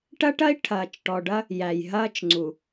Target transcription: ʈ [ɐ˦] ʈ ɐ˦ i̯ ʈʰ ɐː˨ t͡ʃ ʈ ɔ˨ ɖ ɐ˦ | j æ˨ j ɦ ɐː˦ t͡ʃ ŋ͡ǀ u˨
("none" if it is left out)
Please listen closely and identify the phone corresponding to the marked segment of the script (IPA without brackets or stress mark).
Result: ɐ˦